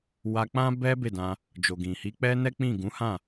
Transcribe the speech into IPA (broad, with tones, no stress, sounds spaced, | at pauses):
w a˧ k͡p ã˦ b ɛ˦ b e˦˨ d ã˧ | d͡ʒ o˨ ɡ ĩ˨ h i˨˦ k͡p ɛ˦ n ɛ˦ k͡p ĩ˦˨ ɡ ũ˨˦ h ã˦˨